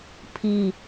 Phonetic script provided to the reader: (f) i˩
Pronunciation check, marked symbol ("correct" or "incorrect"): incorrect